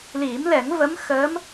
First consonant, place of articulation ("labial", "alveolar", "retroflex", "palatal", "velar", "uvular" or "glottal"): alveolar